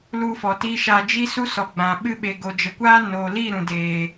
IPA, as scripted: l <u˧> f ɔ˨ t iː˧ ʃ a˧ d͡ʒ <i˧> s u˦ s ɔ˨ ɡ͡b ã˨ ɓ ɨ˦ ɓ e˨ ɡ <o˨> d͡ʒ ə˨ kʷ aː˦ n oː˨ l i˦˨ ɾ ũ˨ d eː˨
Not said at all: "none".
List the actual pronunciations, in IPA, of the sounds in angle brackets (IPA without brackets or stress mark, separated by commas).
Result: u˧, i˦, o˨